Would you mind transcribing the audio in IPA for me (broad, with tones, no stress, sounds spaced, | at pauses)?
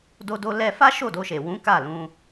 d o˧ d o˧ l ɛ˧ f a˦ ʃ o˦˨ d o˧ ʃ e˨ w ũ˨˦ k a˦˨ l ũ˧